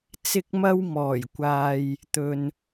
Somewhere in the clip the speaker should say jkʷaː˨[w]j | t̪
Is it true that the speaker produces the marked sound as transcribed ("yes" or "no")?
no